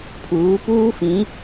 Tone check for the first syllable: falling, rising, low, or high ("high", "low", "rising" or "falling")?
rising